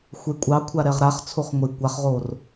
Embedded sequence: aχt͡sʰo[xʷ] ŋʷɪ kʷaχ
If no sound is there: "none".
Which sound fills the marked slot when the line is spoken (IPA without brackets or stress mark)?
χ